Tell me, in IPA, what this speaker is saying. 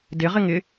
d ɪ ʁ ɪ ŋ ɪ

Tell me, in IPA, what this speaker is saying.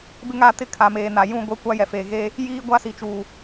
b ɪ˦ ŋ a˦˨ t ɪ˦ kʰ a˨ m eː˨ n a˨ j ũ˦ ɡʷ e˦ kʷ a˦ j ɛ˨ f eː˨ ɣ eː˦ | j iː˦ ɡʷ a˦ s i˨ t͡ʃ uː˨

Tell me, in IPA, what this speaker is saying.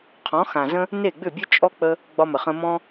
qʰ ɔ̃˨˦ x ã˨ z ə̃˦ | n e˦˨ ɡ͡b ʏ˦˨ bʲ ə˦ t͡ʃʼ ɔ˦ k͡p ə˧ | ɡ͡b ɒ˧ m ə˨ χ ə̃˧ m ɔ̃˦

